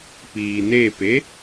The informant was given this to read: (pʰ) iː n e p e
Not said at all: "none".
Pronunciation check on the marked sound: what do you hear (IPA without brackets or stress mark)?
p